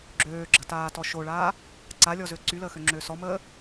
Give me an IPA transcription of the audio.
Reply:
ɡ͡ǁ øː ɡ͡ǁ ə̤ t aː t ɔ ʃ o ɭ aː | ǀ a lʲ ɔ z ø ǀ y l əː x ø ŋ͡ǁ øː s ɔ m əː

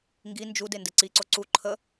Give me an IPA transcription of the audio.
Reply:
ŋ ɡ i n d͡ʒ u d e n d ɨ ǀ i ǀ o ǀ u ǃʰ ə

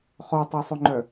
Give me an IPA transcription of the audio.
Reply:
χ ɔ tˤ o sˤ ɵ ŋ͡ǃ œ

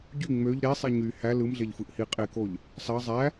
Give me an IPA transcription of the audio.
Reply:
ɟ y ŋ͡m ø ʎ ɾ e sˤ i ɲ y h æ l ɯ m ɮ e ʎ f ɯ ʔ h i qʼ e k o ʎ | s ɑ zˤ æ

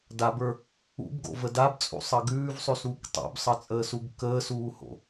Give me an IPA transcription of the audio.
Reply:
d a b ə˞ | ṵ b ɡ o̰ v ə d a b t͡sʼ ṵ sˤ ə ɡ ʉː v sˤ ʉ s uː k tˤ o̰ b sˤ ʌ t͡sʼ əː s u ɡ k əː s uː h o̰

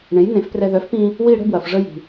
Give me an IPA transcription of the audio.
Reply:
ɳ ẽ˩˥ j n ẽ˩˥ f p r ɛ˧ ð œ˩˥ f p ĩ˧ | w i˥˧ ɽ ə̤˥˧ b w ɐ˩ f ʐ ə˧ j i̤˩

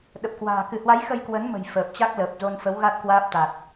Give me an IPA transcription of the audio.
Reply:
ɗ ə˨˩ p̚ k w a̤ː˨˩ k ɨ˧˩ h w a˨˦ j x ə˧ j k w ə˨˦ n m ə̤˨˩ j f əː˨˩ p̚ t͡ɕ a˦˥ k̚ l əː˨˩ p̚ z o˧ n f ə˨˦ w ɣ a˦˥ t̚ k w aː˦˥ p̚ t̪ a˨˩ t̚

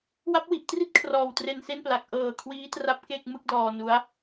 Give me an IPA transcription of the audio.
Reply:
w a˦˥ p̚ w i˨˩ ʔ t r i˥˩ t̚ kʰ r ɔː˨˩ w t r e˧ n s e˥˩ n p l a˨˩ k̚ ʔ ɤː˨˩ kʰ w iː˦˥ t r a˦˥ p̚ k e˥˩ k̚ m ɯ˥˩ k̚ d ɔː˧ n u˦˥ a̯

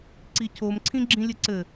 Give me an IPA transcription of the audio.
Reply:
ǀ i cʰ o m ǀʰ ĩ ɡ͡ǁ ĩ lʲ ɘ ǀ ɘ

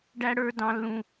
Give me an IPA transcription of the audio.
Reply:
ɖ æ˥ ɽ ə˞˥ d ɑ̃˥ lː ũ˥

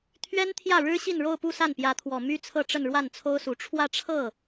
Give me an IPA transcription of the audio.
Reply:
t̪ʰ ɥ ɛ˥ n t̪ʰ j ä˥˩ ɻ ɻ̩˥ ɕ i˥˧ n ɻ o˥˧ ʊ̯ p u˥˧ s a˥˩ n p j ä˧˥ t̪ʰ w ɔ˨˩ m y˥ t͡sʰ ɤ˥˧ ʈ͡ʂ ə˥˧ n ɻ w a˥˩ n t͡sʰ o˥ ʊ̯ s u˧˥ ʈ͡ʂʰ w ä˥˧ ʈ͡ʂʰ ɤ˥˩

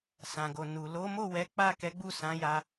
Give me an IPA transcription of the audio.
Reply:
s ã˨ ɡ o˨ n u˨ l o˨˦ m o˦˨ w ɛ˨˦ k͡p a˦˨ k ɛ˨˦ ɡ͡b u˦˨ s ã˨˦ j a˧

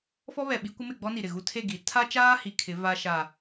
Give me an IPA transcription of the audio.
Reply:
f ɔ˦ β ɛ˨ ɓ i˦ kʷ ɪ˦ m ɪ˦˨ ɡ͡b ɔ˦ n i˨ ɾ ɪ˨ ɣ u˦ tʰ e˦˨ ɡ i˨˦ tʰ a˦ t͡ʃ aː˦ h i˨ kʰ ɪ˨˦ v a˦ ʃ a˨

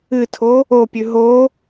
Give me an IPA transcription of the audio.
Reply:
ɨ tʰ o | o pʲ ʉ ɦ o

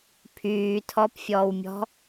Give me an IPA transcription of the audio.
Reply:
pʰ yː tʰ ɔ p fʲ ɔː w mʲ ɔ̤

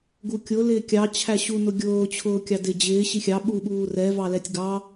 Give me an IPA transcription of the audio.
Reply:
ɡ u kʲ ʊ l ɪː kʲ ɑ t͡ɕʰ æ ɕ u n ʊ ɡʲ ʊː t͡ɕʰ ʊː kʲ ɑ d ɪ d͡ʑ ɪː ɕ i xʲ ɑ ɓ u ɓ uː r ɛ v ɑ l ɛ tʲ ɡ ɑ

